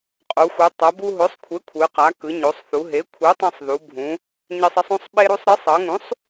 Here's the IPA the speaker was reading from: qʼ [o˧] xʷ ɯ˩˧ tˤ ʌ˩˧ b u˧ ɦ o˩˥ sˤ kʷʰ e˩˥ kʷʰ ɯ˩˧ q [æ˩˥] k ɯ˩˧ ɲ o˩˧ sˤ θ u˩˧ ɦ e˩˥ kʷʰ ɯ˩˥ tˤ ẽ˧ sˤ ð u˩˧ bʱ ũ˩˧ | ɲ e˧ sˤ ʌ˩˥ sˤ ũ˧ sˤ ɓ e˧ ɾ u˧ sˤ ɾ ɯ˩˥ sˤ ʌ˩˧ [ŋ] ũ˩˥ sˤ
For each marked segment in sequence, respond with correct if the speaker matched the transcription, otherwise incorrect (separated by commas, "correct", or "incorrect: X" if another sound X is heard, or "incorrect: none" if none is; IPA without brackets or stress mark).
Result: incorrect: o˩˧, incorrect: a˩˥, correct